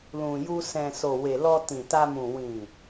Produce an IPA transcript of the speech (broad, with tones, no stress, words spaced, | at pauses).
lũ˨ju˧ sɛ̃˨ so˨we˨ lɔ˧tĩ˨ta˧mũ˨ wĩ˨